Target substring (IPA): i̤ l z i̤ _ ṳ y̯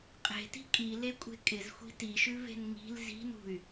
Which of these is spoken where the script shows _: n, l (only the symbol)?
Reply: n